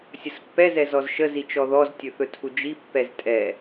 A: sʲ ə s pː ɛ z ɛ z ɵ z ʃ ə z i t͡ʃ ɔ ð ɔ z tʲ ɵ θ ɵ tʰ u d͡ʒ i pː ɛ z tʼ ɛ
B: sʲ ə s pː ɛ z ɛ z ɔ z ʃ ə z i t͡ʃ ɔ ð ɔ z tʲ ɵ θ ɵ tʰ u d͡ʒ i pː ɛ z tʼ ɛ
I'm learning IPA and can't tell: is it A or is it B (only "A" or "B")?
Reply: B